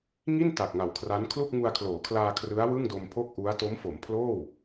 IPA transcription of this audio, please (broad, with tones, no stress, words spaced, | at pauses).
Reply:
ŋi˥˩n ta˨˩k̚ŋa˨˩wkʰra˦˥n kʰlu˥˩k̚ŋu˧a̯kʰloː˩˦kʰlaː˧ kʰrɯ˦˥a̯wɯ˥˩ŋdo˧mpʰo˥˩k̚ ʔu˦˥a̯ to˦˥mfo˩˦mpʰloː˥˩w